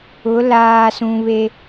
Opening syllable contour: rising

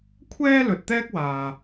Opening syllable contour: high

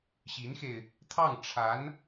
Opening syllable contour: rising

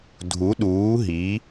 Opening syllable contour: rising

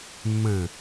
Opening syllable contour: low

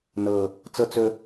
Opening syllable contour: low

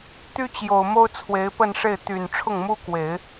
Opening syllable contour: high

